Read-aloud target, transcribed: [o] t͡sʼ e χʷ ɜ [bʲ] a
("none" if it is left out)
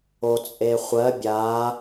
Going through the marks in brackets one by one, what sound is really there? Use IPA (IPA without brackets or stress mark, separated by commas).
o, bʲ